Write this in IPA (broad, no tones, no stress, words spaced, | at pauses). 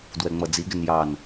dwɛŋ͡mʌd͡ziɡɪn jɑn